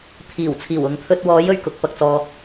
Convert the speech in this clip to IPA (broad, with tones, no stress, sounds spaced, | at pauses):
t̪ʰ iː˨˩ w t͡sʰ iː˨˩ w ʊ˨ ŋ t̪ʰ ɵ˧ t̚ w ɔː˨˥ j ɵ˨˩ ɥ k ʊ˨ k̚ p ɐ˨ k̚ t͡s ɔː˨